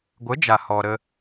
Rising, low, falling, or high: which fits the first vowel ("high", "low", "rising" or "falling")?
rising